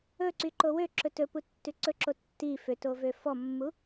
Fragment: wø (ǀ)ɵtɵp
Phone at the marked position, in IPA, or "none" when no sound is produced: ǁ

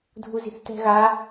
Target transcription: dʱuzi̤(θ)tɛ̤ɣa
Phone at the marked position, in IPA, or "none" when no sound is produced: θ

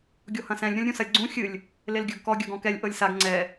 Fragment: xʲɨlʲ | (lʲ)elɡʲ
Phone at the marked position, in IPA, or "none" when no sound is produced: l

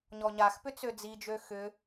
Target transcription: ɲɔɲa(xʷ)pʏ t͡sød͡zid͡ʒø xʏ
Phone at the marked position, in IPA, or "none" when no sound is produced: x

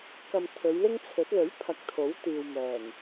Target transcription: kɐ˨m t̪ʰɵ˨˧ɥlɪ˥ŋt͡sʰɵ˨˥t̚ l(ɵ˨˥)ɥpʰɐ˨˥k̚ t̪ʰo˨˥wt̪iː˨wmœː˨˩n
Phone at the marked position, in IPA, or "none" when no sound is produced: ɵ˨˥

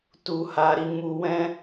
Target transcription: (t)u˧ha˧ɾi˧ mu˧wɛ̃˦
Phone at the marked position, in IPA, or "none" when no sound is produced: t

